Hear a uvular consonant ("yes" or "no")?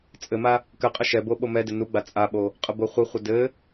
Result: yes